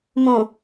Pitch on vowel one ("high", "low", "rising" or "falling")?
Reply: low